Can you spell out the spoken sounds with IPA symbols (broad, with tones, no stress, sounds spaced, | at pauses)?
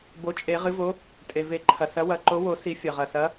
b o˨˥ t͡ʃʼ e˨˩˦ ʁ ɨ˨˥ v o˨˥ | tʼ e˩ v e˨˩˦ ǃʰ ɐ˩ s ɐ˨˥ w ɐ˨˩˦ ǃ o˨˥ w o˨˩˦ s i˨˩˦ fʲ ɐ˩ ʁ ɐ˩ s ɐ˨˥